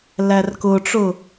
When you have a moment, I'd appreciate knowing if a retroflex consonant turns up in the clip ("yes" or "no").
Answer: yes